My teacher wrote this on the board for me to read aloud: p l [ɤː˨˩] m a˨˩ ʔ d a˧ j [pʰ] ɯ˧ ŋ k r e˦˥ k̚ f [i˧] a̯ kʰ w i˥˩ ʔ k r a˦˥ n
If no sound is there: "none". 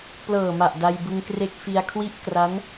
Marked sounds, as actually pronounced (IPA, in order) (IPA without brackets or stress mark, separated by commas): ɤː˨˩, b, i˧